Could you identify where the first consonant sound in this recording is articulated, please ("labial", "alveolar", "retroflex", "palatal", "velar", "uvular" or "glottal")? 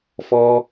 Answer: labial